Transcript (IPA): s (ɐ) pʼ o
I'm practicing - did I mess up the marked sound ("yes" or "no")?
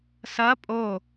no